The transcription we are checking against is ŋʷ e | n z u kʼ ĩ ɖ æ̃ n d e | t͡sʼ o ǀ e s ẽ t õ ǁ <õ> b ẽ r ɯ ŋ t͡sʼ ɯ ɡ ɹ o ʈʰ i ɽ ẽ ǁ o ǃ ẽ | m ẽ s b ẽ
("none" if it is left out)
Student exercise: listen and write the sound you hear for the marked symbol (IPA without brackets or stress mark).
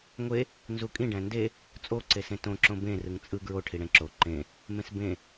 õ